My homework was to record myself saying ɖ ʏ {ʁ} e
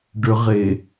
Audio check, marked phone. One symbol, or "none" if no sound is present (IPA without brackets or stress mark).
ʁ